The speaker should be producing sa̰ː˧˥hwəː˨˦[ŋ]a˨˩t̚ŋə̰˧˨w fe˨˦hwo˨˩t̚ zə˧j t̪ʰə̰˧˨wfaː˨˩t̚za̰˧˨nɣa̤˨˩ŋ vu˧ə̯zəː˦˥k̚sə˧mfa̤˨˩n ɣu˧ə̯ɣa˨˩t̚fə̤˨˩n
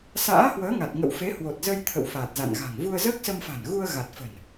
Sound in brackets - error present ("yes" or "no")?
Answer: no